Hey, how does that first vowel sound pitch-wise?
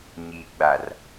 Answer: low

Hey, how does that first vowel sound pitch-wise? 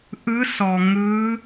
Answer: rising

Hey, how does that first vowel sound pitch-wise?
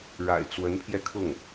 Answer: low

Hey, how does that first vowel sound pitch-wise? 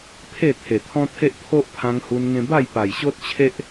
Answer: falling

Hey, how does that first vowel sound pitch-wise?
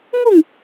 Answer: falling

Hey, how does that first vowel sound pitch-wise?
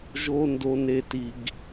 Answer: high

